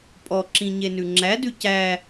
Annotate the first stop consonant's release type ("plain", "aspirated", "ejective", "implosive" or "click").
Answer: ejective